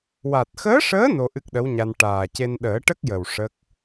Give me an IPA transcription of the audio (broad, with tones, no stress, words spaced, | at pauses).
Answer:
wa˨˩t̚xəː˧˥ʂəː˧˥ no˧ʔɨ˦˥k̚ɗə˧˥wɲa˧n ʈaː˨˩ce˧n ɗəː˨˩˦ʈə˦˥k̚jə˨˩w ʂə˦˥k̚